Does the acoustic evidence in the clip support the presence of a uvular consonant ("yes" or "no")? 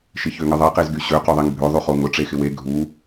yes